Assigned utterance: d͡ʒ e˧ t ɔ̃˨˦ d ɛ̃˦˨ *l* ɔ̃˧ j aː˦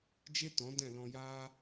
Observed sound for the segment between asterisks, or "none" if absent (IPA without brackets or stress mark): l